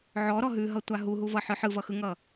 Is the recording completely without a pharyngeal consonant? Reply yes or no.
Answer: no